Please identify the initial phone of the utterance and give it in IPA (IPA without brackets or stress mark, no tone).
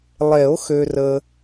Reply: lˠ